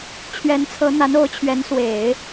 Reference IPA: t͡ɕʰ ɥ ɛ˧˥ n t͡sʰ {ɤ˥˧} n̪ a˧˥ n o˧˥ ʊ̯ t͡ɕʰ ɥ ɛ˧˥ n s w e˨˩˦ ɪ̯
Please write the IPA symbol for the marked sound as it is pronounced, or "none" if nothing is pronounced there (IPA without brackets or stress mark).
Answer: ɤ˧˥